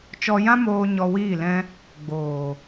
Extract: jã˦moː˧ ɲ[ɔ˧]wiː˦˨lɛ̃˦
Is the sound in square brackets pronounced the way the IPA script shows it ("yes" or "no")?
yes